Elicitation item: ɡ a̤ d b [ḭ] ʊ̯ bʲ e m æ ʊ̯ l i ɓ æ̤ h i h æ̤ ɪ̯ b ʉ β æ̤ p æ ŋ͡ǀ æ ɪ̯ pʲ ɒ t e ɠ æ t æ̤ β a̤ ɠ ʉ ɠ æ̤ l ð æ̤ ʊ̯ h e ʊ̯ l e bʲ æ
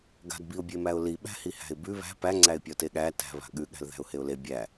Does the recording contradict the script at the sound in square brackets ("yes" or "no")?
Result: yes